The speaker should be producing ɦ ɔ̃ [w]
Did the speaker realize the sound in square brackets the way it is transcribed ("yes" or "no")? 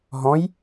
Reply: no